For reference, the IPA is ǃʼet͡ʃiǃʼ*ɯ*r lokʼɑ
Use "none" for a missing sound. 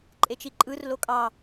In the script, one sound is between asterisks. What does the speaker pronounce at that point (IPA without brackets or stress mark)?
ɯ